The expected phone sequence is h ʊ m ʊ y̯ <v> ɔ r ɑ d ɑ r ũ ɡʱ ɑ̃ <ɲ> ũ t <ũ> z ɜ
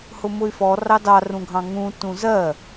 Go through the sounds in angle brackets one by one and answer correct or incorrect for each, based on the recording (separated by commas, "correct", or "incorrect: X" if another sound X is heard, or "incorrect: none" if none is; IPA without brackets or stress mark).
incorrect: f, incorrect: ŋ, correct